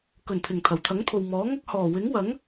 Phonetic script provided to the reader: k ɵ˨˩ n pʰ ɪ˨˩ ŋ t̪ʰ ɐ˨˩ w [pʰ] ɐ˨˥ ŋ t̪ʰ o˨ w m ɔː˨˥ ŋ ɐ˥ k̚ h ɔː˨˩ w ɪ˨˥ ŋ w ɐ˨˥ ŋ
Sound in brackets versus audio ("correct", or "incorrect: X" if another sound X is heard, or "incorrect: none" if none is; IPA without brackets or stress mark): incorrect: t̪ʰ